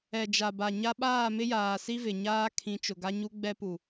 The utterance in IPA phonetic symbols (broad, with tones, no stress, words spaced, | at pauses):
ɛ˨d͡ʒa˨ba˨ ɲa˦ ɓaː˦˨mɪ˦jaː˨si˦ vɪ˨ɲaː˦ kʰĩ˨˦t͡ʃʊ˨ɡa˦ ɲu˦ ɡ͡bɛ˦pu˨